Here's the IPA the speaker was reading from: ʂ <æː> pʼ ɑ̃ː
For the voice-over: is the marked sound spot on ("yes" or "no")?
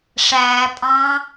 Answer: yes